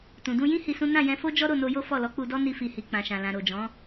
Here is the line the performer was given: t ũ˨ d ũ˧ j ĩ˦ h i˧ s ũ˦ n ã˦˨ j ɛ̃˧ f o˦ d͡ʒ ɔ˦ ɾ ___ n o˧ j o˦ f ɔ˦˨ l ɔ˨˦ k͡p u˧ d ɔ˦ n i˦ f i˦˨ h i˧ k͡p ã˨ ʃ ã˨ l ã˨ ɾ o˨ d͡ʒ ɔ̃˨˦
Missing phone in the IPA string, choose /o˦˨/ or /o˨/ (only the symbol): o˦˨